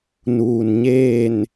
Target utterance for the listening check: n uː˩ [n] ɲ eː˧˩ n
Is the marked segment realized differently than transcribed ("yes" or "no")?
no